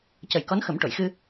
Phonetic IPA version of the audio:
c ə˨˩ j k ɔ˧˥ n x ə˨˩˦ m ʈ o˨˩˨ j x ɨ˧

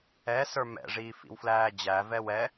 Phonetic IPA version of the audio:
ɛ s ə˞ m ɛ̰ ʐ iː f ḭ w f l æː d͡ʑ æ v ɛ w ɛ

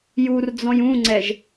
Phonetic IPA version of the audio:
j u r d͡z ɔ̃ j ũ ŋ͡ǀ ɛ ʒ

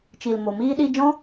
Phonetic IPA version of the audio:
t͡ʃ i˨ l m o˨ m iː˧ ɗ i˧ d͡ʒ ɔ̃˦

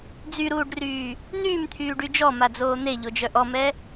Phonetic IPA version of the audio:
d͡z y ɾ uː ɖ r yː | n̪ yː m t̪ʰ yː ɖ y d͡ʒ ɔ m a d͡z oː n̪ e ʎ o d͡ʒ œ ʔ ɔ m ɛ

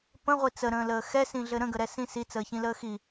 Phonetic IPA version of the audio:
p ə̃ ʁʷ i t͡s ə ɾ ə̃ː l əː x ɛ s ĩ ɮ ɘ ɾ ə̃ ɡ ə ɾ ɛ s ĩ s i t͡s əː ç ĩ l əː x i

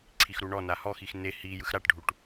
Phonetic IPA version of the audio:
ǀʰ i x ɾ u ɳ ɔ n a h ɔ x i x n e h i j ɯ x ɾ a ʈ ɖʱ u ʈ

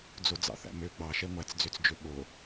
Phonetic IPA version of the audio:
d͡z o d͡z ɑ̰ θ æ̰ m ø ɡ͡b ɑ ʃ ɛ ŋʷ æ t͡s d͡z ø t͡s d͡ʒ ø ɓ o

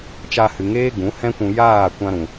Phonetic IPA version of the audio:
t͡ʃ a˧ h ɨ˨ ŋ eː˦ ɡ ũ˨˦ h ɛ̃˦ kʷ ũ˧ j aː˦˨ kʷ ã˦ ɾ ũ˨

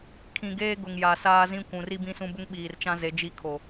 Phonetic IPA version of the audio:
kʰ ĩ˨ ɡ eː˦ ɡ ʊ˨ ŋ j a˨ s aː˦ z ĩ˦ kʷ ũ˨ r i˦ b ĩ˦ s ũ˦ b ʊ˦ ŋ ɓ iː˨ r t͡ʃ ã˦ z e˨˦ d͡ʒ i˦ kʰ o˨

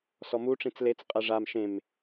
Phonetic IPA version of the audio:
s ɔ m u ʈ͡ʂ ĩ t͡s l e t͡s qʼ ɛ ʐ a m ʃ ẽ m

